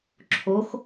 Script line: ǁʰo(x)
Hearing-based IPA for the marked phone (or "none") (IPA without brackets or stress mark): x